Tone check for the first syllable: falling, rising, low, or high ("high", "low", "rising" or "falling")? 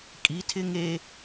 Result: rising